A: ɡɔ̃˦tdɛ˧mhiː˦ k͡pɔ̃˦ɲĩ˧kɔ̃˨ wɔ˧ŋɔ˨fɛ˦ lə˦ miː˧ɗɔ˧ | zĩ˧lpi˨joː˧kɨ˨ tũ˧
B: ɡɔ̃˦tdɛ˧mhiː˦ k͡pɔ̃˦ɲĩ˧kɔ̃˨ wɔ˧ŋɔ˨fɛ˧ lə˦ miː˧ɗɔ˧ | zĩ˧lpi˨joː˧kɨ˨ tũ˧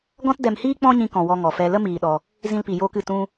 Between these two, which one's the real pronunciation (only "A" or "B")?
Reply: B